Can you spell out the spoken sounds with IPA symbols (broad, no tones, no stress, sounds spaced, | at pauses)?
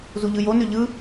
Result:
z u ʎ ɯ j o n ø ʎ ɯ